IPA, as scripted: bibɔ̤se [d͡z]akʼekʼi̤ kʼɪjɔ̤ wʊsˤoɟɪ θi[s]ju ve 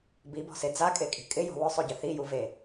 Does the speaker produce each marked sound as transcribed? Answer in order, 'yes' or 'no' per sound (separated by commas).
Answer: yes, no